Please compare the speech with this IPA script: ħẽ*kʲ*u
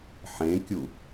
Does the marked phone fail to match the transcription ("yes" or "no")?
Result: no